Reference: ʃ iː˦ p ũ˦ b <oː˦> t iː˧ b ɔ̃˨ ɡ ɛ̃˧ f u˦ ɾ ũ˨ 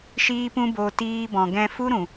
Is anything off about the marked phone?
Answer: yes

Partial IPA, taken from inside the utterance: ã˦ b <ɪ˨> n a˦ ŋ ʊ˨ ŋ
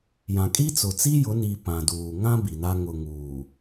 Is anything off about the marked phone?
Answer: yes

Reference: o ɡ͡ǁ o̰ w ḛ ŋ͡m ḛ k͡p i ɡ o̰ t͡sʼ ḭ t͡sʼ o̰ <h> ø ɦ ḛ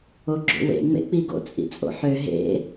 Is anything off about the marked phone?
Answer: yes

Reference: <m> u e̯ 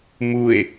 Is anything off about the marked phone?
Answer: no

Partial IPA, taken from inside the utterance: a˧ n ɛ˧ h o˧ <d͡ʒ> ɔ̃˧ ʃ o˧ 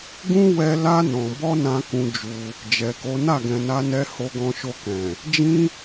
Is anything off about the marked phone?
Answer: yes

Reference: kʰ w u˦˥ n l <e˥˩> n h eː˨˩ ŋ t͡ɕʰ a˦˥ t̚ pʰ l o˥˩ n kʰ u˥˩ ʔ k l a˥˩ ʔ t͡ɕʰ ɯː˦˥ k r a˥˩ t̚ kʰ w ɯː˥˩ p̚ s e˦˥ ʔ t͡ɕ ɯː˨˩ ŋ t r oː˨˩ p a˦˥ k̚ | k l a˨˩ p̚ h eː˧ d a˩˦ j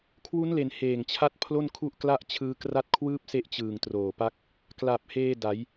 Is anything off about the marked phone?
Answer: yes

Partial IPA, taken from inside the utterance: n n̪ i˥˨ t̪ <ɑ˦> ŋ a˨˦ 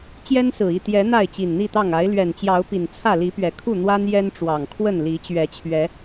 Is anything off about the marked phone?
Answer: yes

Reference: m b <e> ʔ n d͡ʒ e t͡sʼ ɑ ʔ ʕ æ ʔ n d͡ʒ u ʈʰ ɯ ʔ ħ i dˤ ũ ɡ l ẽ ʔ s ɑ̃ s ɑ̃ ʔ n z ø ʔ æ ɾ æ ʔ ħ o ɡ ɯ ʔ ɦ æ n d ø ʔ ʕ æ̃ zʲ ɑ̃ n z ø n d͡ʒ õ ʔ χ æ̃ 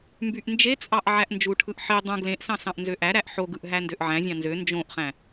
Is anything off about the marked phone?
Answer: yes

